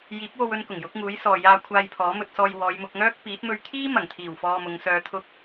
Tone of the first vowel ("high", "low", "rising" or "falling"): rising